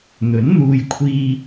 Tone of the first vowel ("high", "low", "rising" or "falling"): rising